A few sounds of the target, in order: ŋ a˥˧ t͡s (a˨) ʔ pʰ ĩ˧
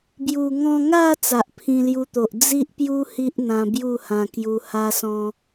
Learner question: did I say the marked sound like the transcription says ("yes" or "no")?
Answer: yes